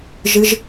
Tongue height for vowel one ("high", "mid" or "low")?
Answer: high